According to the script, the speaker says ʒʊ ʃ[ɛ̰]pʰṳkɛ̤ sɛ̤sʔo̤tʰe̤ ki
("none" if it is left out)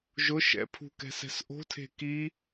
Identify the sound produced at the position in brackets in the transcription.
ɛ̰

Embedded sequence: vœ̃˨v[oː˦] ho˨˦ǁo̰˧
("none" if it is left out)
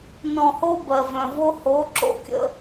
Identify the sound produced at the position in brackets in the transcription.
o˦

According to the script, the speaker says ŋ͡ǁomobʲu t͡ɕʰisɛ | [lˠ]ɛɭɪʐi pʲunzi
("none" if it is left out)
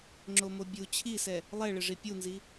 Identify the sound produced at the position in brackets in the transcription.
lˠ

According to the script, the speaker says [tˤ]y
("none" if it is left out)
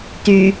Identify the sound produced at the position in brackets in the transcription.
t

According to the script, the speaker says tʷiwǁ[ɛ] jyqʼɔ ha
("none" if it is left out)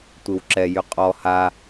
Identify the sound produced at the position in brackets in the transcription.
ɛ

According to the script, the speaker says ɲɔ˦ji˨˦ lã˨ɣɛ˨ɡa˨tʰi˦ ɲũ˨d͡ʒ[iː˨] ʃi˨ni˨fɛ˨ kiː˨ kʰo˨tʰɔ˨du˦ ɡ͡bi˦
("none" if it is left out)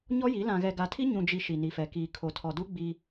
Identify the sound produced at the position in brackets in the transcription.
i˨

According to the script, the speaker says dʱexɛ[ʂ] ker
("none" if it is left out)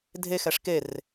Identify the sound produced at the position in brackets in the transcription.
ʂ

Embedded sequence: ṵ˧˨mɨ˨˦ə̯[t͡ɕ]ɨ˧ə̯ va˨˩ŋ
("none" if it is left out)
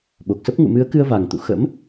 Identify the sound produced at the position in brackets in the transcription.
k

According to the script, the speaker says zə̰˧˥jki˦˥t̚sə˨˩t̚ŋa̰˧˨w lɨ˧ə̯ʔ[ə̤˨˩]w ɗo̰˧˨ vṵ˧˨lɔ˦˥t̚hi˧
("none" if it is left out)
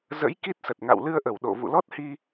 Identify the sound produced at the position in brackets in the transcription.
ə˧˩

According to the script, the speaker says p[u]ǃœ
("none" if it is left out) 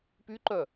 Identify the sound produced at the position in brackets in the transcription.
y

